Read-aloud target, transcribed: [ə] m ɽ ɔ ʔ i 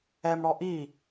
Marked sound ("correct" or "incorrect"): incorrect